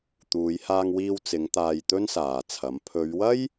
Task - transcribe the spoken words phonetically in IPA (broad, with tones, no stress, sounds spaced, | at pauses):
t̪ uː˨˧ j h aː˧ ŋ w iː˧ w t͡s ɪ˨˧ ŋ t̪ aː˧ j t̪ ɵ˥ n s aː˨ t͡sʰ ɐ˨˥ m pʰ ɵ˨˧ ɥ w ɐ˥ j